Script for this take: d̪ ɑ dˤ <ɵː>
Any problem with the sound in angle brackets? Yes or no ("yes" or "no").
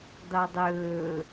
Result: no